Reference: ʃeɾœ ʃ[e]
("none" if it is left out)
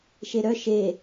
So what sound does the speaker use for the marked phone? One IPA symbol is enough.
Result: e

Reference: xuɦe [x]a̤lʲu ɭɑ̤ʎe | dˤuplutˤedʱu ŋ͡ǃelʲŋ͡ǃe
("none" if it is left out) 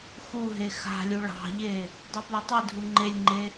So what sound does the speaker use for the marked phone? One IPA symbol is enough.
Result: x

